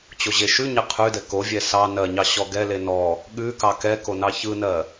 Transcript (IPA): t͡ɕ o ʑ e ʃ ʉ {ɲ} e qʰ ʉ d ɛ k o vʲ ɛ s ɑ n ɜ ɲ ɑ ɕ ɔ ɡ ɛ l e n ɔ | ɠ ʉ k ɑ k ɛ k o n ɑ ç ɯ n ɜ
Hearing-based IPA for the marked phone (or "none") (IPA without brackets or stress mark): ɲ